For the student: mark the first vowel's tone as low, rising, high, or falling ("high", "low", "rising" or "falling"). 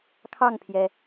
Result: falling